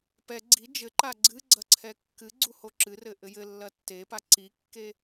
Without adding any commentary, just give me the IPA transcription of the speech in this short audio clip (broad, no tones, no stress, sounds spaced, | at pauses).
p ɛ ɡ͡ǀ i d͡ʒ ɘ ǃ a ɡ͡ǀ ɨ ɡ͡ǀ ɐ ǀʰ ɛ kː ɨ ɡ͡ǀ u h o ǁ ɨ r ɘ ʔ ɘ j ɘ lː ɐ tː e p a ǀ i kː e